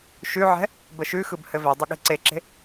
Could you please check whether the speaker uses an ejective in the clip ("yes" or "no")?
no